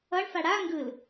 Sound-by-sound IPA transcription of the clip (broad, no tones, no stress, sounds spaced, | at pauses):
ʌ ɳ f a ɽ a ŋ ɡ ɯ l